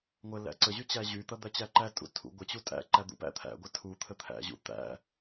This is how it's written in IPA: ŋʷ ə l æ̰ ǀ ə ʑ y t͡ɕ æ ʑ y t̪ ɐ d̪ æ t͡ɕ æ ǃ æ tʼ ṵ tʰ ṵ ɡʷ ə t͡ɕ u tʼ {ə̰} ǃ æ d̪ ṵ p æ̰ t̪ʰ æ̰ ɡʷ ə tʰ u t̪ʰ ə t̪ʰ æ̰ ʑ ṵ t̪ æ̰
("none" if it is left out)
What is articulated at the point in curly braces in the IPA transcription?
æ̰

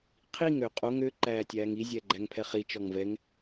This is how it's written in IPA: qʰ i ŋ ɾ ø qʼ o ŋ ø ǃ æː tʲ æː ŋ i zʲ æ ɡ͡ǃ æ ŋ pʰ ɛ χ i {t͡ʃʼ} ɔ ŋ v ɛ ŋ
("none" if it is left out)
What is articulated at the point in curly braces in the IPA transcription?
t͡ʃ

